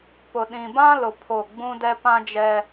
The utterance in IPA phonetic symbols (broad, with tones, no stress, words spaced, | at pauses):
pʊ˨ɗĩ˨bã˦lʊ˨ pʰo˦˨ ɡ͡bũ˦dɛ˦ pã˦d͡ʒɛ˦